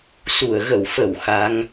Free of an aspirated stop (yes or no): yes